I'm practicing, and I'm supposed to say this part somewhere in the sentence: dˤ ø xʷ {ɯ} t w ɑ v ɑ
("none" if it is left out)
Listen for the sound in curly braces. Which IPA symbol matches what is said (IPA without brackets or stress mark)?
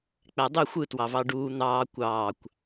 ɯ